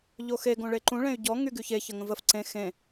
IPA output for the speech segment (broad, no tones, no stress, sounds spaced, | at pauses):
ʎ o x e ɡ õ ɭ e ǃ ũ ɭ ẽ y̯ ɟ ɔ ŋ y ɡ y ç e ç ə ŋ ə̃ v ə f ǀ ẽ x ẽ